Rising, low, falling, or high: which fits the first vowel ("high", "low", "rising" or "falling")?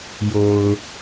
low